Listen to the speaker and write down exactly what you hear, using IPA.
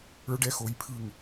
ə˞˦ ɖ ɛ˦ x o˧ j pʰ ɯ˦˨ ŋ

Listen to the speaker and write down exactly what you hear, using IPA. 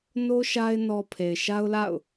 n o˦ ʃ a˦ ɪ̯ n ɔ˦ pʰ e˨ ɪ̯ ʃ a˦ ʊ̯ l a̰˦˨ ʊ̯

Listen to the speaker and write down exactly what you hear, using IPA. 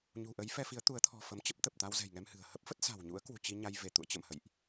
ɲ ṳ˨˩ ʔ ə˨˦ j f ɛ˧ f i˨˦ ə̯ t̪ u˨˦ ə̯ t̪ʰ ɔ̤˨˩ f ə˨˦ m t͡ɕ ə˦˥ p̚ t̪ ə˨˩ p̚ t̪ a˧ w z ɛ̤˨˩ j ŋ ɛ˧ m h ɨ̤˨˩ ə̯ h ə˦˥ p̚ f ə˦˥ t̚ s a̤˨˩ w ɲ ṵ˧˥ ə̯ k w ṳ˨˩ t͡ɕ i˧ ɲ a˧ j v e˧˩ t̪ ṵ˧˨ ə̯ t͡ɕ ə̰˧˨ m h ə̰˧˨ j ʔ

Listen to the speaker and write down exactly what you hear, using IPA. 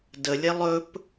d ə lʲ ɛ lˠ ɵ p

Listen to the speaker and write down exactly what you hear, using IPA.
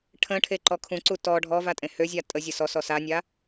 ʈʰ ə̃ ʈʰ e ǃ ɔ kʰ ũ ǀ u t ɔ ɖʱ ɔ v a tʼ ẽ h ø zʲ a tʼ ə zʲ ə s ɔ s ɔ s a nʲ a

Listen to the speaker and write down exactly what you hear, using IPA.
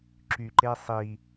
ǁ y ǃ e sˤ i

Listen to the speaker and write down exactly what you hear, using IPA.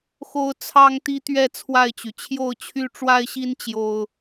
x o˦ ʊ̯ t͡sʰ ɑ˦ ŋ t̪ i˦ t̪ ɥ ɛ˥˨ t͡sʰ w a˥˨ ɪ̯ t͡ɕ y˩ t͡ɕʰ j o˥˨ ʊ̯ t͡ɕʰ y˦ ʈ͡ʂ w a˦ ɪ̯ ɕ i˦ n t͡ɕ j o˦ ʊ̯

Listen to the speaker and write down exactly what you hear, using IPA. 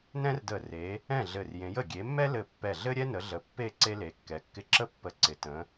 n ɛ̃˥ r d ə˧˩ r e˨˦ | ɛ̃˥˨ ɮ ɘ˧˩ r j ẽ˨˦ j ə˧˩ ɡʲ e˨˦ mː ɛ˥ l ɘ˧˩ pː ɛ˧˩ ɮ ɘ˥ ɾʲ ɛ˥ n ə˨˦ ɮ ə˨˦ pː e˥˨ ǀ e˥ l e˨˦ kː ɛ˨˦ kː ɪ˥˨ ǁ ə˥ pː ə˧˩ ǀ ɪ˨˦ t ə̃˨˦

